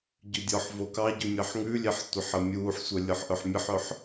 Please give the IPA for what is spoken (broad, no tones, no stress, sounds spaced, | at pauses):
ɟ ʉ dʲ ɔ ħ v o k ɑ ɟ ʉ mʲ ɑ ħ ŋ ʉ lʲ e ħ tʷ e ħ ə mʲ uː ħ sʷ œ lʲ ɤ ħ ʔ œ ħ mʲ ə ħ œ ħ